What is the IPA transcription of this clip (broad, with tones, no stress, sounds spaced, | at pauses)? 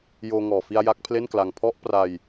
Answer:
j oː˧ ŋ ɔː˨˩ f i˧ a̯ j a˦˥ k̚ pʰ l e˥˩ n k l a˧ ŋ pʰ ɔ˦˥ ʔ p r a˧ j